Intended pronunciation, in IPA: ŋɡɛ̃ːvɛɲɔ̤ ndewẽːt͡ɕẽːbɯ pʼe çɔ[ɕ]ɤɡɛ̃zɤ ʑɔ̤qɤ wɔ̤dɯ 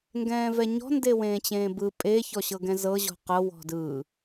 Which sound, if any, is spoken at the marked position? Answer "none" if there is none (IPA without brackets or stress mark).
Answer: ɕ